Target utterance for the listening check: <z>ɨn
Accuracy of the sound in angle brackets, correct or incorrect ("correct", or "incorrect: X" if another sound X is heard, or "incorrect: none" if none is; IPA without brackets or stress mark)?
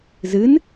correct